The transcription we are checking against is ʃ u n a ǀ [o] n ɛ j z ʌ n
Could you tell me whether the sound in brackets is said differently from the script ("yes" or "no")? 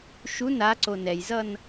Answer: no